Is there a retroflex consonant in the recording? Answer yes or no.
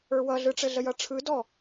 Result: yes